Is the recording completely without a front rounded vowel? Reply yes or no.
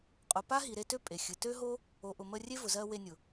no